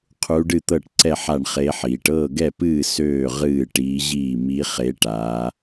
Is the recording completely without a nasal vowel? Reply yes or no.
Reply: yes